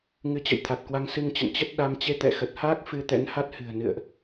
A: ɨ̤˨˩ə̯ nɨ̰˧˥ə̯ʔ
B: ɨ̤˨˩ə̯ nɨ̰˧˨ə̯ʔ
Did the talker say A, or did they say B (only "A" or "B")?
B